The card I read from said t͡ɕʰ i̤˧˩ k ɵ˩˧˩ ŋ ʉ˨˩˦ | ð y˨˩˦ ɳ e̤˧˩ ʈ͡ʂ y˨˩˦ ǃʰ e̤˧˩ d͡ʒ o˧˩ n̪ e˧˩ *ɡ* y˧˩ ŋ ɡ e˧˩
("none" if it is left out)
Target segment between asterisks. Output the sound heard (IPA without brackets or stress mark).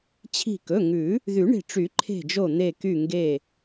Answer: k